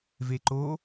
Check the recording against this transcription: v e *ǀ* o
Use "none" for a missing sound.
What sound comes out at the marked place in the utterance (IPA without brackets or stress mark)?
ǃ